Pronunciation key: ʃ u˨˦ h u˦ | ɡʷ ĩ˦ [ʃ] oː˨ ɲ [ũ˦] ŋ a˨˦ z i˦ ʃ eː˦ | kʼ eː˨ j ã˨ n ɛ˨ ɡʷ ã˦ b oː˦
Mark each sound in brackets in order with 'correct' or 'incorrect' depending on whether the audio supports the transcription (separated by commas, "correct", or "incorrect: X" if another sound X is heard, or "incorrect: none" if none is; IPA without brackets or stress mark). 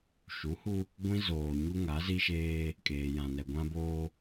incorrect: z, incorrect: u˦